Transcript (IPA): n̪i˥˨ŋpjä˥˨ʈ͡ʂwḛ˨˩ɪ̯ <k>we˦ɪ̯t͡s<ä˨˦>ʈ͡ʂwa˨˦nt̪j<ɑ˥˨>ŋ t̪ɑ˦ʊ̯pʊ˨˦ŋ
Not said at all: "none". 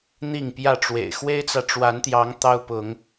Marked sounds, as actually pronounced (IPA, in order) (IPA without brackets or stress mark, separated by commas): x, ä˨, ɑ˨˦